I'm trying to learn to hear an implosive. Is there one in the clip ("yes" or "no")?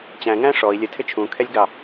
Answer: no